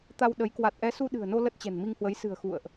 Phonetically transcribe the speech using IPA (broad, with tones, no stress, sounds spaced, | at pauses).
t̪ a˧ w ɗ ə˨˦ j k w a˨˩ t̚ ʔ ɛ˨˦ s u˧ ɗ ɨ̤˨˩ ə̯ n o˧ l ə˦˥ t̚ t͡ɕ ɛ̤˨˩ n m i˧ ŋ h w ə˨˦ j s ɨ̤˨˩ ə̯ x ṵ˧˨ ə̯ ʔ